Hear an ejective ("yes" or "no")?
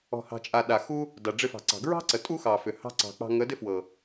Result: yes